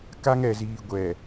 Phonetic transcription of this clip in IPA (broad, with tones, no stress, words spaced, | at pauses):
ka˦ŋɛ˨ziː˨ ɡʷɛ˨